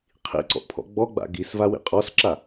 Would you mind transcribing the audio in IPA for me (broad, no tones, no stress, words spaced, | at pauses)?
qʰḭǀɔ̰ʔpʰɔ̰ ɡ͡bɔɡ͡ba̰ ɡisvawḭ qʼɔsǁa